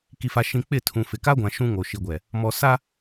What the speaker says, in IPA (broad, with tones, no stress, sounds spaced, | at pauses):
k i˨ f a˨ ʃ ĩ˨ k͡p ɪ˦˨ tʰ ũ˨ f ɪ˨ k a˦ ɡʷ ã˨ ʃ ũ˦ ŋ o˨ ʃ i˨ ɡʷ ɛ˨ | m ɔ˨ s a˦